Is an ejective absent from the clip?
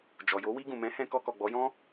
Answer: yes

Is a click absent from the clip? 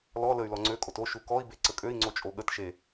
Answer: no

